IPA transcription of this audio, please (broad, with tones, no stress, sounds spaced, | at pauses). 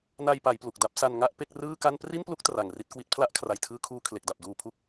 n a˧ j p a˩˦ j p l u˨˩ k̚ d a˥˩ p̚ s a˧ n ŋ a˥˩ ʔ p e˥˩ k̚ r ɯː˥˩ k a˥˩ n p r i˥˩ n p l u˦˥ k̚ t r a˨˩ ŋ r i˦˥ t̚ k w i˦˥ t̚ pʰ l a˥˩ ʔ kʰ r a˨˩ j tʰ ɯː˧ kʰ uː˧ kʰ l e˨˩ k̚ d a˨˩ p̚ d uː˧ pʰ u˦˥ k̚